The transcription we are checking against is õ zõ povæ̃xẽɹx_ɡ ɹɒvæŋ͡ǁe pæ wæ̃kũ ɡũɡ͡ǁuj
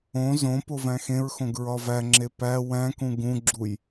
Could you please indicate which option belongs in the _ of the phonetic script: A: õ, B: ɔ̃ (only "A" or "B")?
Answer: A